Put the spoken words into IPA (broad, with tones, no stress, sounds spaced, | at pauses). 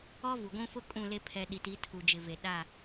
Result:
ɔ˦ v u˨ ɡʷ ũ˦ f ʊ˦ kʼ ũ˦˨ l e˦ pʰ ɛ˦ ɗ i˨ t i˨˦ tʰ u˨ d͡ʒ ɪ˨ v e˨ ɗ a˦˨